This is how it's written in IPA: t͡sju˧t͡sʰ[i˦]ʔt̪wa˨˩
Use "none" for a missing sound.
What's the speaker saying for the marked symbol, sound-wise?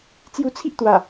i˦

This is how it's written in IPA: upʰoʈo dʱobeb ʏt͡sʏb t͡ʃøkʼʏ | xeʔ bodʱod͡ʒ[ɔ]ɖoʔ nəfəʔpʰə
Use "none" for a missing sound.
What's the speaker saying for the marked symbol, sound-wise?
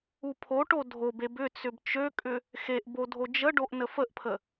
ə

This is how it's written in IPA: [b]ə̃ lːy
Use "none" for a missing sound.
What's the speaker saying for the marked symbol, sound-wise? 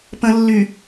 p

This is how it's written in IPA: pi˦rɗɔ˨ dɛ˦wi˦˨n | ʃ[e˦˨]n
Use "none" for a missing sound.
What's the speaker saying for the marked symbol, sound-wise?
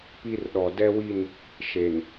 e˨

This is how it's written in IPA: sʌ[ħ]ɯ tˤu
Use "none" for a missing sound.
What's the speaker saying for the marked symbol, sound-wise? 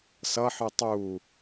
ħ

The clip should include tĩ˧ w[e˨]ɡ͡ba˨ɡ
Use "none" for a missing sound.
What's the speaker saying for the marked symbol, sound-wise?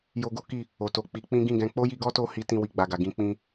i˨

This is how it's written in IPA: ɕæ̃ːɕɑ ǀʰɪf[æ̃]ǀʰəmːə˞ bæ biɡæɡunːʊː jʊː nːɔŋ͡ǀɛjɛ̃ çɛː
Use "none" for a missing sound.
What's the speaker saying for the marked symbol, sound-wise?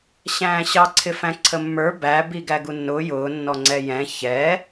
æ̃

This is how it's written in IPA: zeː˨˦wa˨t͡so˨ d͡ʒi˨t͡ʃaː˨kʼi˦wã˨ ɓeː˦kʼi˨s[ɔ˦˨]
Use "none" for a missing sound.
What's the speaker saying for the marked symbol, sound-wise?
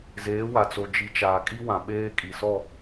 ɔ˦˨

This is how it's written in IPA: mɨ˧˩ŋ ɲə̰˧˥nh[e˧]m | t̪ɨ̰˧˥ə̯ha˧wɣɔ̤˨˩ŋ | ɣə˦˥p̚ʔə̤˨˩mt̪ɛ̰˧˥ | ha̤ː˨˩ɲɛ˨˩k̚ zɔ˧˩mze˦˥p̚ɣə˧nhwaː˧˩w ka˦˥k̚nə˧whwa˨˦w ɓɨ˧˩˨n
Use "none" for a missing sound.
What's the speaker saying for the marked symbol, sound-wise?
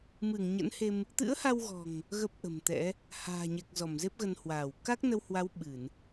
e˧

